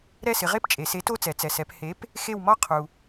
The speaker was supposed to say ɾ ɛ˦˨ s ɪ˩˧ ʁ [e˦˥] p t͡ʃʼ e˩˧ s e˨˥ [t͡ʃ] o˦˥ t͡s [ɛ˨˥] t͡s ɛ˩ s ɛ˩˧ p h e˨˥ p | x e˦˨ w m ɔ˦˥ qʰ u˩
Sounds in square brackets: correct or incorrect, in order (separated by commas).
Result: correct, incorrect, incorrect